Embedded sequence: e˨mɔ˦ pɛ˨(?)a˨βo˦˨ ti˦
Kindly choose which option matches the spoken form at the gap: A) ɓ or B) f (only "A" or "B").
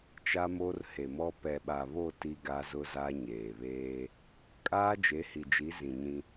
A